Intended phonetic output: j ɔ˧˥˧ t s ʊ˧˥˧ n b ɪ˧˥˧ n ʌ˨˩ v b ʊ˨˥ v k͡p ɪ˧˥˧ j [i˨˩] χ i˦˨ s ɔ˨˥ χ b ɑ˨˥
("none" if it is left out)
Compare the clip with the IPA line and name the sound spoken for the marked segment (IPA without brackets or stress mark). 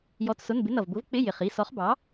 ɪ˨˩